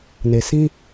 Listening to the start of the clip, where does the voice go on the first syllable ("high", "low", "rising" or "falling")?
low